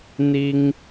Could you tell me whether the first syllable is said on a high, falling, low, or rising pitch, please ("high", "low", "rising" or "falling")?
high